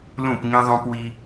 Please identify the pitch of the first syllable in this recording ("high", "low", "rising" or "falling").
falling